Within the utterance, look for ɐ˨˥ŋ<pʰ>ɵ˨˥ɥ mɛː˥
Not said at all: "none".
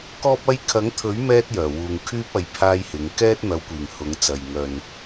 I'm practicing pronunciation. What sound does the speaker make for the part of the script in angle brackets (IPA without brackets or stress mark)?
t̪ʰ